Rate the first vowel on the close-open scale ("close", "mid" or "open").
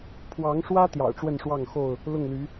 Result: open